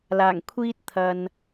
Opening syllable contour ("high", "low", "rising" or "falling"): low